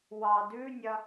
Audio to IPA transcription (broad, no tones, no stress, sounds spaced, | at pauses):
w ɑ d ʉ nʲ ɐ